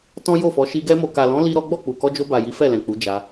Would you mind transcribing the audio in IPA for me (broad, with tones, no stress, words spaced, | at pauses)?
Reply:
tɔ̃˦jo˦˨fɔ˨˦ ʃi˧ ɡɛ˧mo˨ka˨lɔ̃˨˦ li˦ɾɔ˦ ɡ͡bɔ˦˨k͡pu˨kɔ˧d͡ʒo˧ ba˨ji˨˦ fɛ˦˨lɛ̃˨k͡pu˨˦ d͡ʒa˧